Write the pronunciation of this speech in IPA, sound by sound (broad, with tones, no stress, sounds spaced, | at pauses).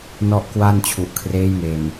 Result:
n ɔ˥˩ ʔ k w a˥˩ n t͡ɕʰ u˨˩ ʔ kʰ r eː˦˥ j m eː˨˩ m